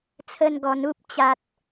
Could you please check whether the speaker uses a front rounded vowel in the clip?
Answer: no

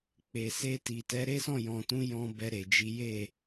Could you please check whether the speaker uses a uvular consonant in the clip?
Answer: no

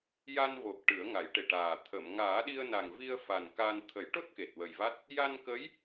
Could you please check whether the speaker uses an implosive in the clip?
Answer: yes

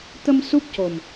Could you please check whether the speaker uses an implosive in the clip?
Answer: no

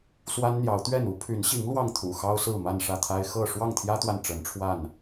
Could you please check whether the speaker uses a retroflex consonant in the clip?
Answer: yes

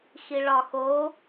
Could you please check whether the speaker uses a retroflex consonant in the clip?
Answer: yes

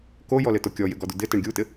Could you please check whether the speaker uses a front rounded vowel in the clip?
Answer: no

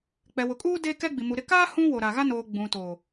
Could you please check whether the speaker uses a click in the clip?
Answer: no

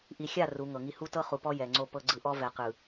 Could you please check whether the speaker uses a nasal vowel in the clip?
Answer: no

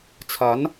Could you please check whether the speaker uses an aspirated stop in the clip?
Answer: yes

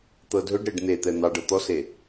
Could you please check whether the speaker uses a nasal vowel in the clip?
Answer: no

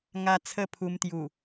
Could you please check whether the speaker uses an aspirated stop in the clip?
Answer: yes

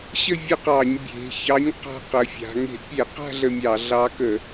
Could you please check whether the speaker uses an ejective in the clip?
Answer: no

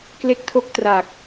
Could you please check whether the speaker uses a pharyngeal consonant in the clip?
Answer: no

